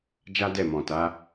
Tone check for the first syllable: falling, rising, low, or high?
high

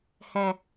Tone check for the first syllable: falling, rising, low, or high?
low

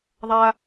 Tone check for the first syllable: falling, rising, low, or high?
high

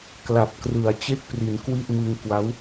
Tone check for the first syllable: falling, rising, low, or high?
low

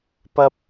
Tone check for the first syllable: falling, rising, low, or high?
high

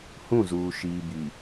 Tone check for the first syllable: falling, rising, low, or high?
falling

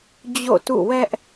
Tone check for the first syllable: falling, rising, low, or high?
falling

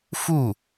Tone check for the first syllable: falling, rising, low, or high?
falling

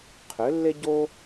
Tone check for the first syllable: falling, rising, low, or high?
rising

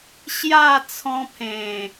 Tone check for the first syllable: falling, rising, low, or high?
falling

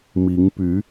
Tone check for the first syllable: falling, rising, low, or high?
rising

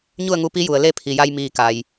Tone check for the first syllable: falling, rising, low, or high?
falling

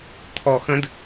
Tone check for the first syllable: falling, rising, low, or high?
low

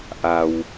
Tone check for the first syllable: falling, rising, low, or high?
low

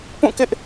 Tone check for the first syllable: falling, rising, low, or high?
falling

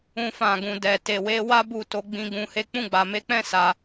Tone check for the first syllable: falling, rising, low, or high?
high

